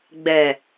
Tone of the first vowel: low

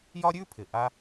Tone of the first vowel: high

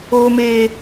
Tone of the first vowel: high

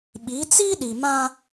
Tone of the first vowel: rising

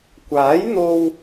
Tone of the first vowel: rising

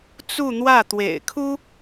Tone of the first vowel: falling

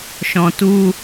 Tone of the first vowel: low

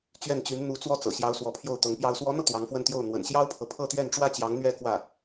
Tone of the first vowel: falling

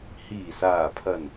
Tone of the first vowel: low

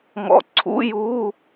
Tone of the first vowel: low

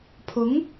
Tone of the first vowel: rising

